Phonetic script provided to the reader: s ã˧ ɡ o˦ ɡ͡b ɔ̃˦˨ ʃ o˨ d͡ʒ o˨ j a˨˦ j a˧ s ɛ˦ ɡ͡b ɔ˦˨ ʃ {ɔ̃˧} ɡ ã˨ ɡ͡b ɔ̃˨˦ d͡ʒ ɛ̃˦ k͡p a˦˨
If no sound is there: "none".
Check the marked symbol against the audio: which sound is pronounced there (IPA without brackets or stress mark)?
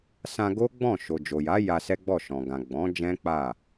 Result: ɔ̃˨